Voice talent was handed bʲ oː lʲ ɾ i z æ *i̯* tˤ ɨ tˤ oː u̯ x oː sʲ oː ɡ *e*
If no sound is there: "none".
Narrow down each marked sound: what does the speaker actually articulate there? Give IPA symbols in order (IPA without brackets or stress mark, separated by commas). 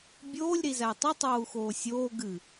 i̯, ɨ